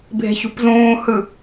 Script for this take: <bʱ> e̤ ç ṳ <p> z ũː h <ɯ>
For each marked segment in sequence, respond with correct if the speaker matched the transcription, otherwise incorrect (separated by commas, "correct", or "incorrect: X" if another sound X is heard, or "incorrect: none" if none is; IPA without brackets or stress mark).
correct, correct, correct